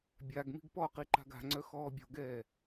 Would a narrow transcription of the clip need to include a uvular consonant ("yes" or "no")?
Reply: yes